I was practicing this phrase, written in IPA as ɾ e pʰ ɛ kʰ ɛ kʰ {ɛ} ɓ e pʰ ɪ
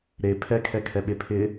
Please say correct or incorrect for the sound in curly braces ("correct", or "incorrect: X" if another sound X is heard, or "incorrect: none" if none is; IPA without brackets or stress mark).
correct